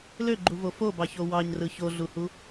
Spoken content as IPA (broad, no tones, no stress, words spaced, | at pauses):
løɡ͡ǃuvo fobɑço wɑɲrɯ çoɮuhu